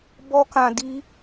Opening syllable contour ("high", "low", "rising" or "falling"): high